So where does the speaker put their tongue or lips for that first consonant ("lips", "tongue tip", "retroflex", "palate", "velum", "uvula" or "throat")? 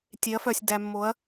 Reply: tongue tip